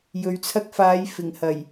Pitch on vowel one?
low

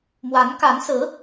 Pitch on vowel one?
rising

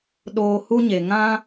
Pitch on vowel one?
low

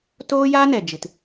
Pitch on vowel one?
high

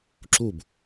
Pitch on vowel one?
falling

